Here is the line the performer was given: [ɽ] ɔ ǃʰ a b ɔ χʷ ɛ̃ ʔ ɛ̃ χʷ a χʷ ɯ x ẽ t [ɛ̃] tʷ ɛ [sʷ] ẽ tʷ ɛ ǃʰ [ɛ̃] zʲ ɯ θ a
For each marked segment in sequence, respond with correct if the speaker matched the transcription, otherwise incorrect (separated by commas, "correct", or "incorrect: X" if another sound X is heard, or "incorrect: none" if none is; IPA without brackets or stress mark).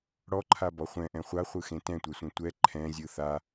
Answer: correct, correct, correct, correct